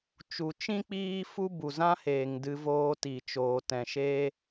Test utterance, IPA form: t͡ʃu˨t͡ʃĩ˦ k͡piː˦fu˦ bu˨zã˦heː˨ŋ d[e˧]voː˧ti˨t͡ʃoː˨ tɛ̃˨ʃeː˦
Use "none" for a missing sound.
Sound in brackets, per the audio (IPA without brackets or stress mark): ɨ˧